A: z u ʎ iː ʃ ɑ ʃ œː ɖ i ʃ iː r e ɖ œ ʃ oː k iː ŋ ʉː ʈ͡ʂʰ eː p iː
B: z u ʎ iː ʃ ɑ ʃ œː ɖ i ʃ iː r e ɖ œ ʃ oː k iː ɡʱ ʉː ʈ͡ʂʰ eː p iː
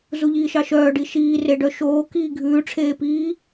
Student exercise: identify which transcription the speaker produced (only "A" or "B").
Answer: B